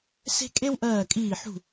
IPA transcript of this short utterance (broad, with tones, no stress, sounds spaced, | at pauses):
s e̤˥ kʼ e˥ w ʔ ɜː˦˨ kʼ iː˦˨ ħ ṳ˦˨